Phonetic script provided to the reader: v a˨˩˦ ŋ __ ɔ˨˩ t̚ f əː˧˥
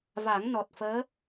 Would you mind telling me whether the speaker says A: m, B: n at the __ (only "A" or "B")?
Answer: B